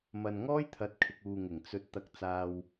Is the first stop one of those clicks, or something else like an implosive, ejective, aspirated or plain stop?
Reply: aspirated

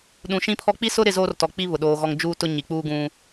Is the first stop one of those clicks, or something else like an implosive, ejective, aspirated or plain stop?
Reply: implosive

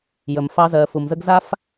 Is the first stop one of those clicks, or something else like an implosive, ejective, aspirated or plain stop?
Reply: plain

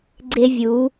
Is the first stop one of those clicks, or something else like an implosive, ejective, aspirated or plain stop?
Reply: click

